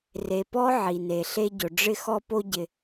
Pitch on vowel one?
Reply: low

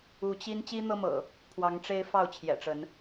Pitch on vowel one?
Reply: rising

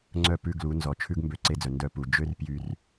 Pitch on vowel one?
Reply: falling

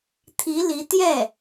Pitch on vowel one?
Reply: rising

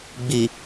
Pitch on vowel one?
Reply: low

